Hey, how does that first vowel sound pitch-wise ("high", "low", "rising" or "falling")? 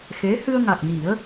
rising